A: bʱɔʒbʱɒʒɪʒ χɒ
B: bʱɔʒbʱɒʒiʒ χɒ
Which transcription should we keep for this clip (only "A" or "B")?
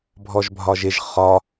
A